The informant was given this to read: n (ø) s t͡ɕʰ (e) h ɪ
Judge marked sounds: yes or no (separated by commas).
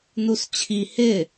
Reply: no, no